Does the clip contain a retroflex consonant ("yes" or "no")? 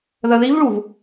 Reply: yes